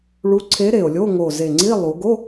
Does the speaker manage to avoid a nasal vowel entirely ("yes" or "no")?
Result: yes